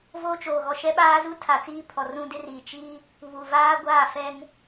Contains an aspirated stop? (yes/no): yes